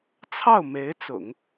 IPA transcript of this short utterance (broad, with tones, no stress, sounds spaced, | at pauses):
t͡sʰ ɑ˥˩ ʊ̯ m e˧˥ ɪ̯ t͡s ʊ̰˨˩˦ ŋ